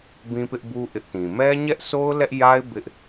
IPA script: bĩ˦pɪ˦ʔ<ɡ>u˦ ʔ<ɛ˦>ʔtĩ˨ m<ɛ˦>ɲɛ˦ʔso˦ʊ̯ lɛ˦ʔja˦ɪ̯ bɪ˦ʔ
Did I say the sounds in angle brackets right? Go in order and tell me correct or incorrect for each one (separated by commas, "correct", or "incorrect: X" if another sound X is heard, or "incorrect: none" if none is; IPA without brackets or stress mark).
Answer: incorrect: b, incorrect: ɪ˦, correct